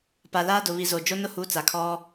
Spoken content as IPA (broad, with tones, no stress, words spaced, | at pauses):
pa˨laː˦dʊ˨ βi˨zo˨ d͡ʒo˦nʊ˦hu˨˦t͡sa˨ kʰɔ˦